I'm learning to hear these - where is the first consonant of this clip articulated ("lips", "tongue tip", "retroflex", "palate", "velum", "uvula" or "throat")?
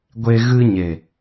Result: velum